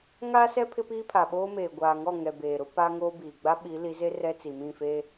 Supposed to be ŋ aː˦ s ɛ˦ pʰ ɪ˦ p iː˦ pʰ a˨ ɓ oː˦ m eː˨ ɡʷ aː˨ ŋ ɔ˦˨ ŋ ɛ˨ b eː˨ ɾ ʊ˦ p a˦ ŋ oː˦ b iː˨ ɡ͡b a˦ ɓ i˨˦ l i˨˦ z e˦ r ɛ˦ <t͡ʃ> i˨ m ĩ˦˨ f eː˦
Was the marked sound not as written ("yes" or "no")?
yes